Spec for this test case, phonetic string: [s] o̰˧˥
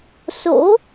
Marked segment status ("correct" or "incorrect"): correct